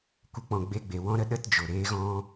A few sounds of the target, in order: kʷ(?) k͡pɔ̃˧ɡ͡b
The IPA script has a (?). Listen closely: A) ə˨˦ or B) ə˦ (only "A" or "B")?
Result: B